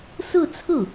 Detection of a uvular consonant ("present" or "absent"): absent